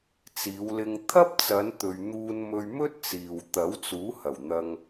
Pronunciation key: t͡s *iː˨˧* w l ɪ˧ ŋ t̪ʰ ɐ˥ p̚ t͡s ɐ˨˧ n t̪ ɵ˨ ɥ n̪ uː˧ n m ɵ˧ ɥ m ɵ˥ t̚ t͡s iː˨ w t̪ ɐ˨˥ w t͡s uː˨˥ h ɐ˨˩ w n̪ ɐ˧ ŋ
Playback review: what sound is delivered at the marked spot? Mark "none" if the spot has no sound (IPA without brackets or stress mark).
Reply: iː˨˧